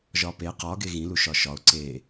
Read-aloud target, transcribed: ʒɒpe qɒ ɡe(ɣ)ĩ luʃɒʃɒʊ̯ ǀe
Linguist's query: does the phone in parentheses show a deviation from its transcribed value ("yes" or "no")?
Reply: no